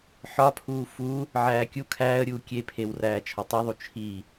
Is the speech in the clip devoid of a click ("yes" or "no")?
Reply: yes